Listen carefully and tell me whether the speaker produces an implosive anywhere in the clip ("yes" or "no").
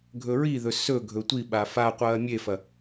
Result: yes